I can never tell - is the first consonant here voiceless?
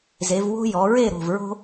no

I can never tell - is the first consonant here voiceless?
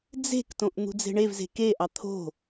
no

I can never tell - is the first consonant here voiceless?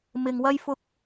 no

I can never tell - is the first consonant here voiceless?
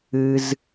no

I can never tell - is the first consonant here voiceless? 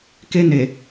yes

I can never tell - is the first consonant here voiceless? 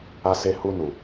yes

